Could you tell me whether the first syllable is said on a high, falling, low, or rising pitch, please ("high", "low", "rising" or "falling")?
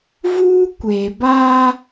high